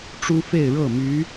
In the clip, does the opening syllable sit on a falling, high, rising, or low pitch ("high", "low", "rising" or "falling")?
high